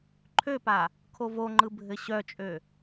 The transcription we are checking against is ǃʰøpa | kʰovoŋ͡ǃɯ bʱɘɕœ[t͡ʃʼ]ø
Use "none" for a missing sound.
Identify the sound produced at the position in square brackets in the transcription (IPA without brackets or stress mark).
t͡ʃʼ